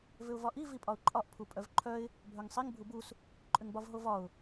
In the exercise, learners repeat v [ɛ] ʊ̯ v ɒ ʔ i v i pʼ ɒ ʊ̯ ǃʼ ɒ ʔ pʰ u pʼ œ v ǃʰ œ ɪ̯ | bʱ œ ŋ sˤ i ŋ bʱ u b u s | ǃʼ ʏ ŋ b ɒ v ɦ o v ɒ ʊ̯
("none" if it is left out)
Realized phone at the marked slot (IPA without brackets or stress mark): ʏ